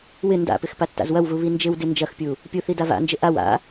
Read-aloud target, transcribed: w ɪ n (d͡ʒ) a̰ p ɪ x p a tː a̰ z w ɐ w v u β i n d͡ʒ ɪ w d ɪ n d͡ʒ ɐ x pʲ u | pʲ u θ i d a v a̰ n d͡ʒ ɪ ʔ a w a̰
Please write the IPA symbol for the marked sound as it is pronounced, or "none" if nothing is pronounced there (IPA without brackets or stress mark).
d